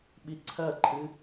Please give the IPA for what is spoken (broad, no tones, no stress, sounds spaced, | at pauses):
ɓ i ǀʰ ɐ ǃʰ ɨ